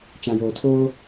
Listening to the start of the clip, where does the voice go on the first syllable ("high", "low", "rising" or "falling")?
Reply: low